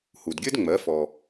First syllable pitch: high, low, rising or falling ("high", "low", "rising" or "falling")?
low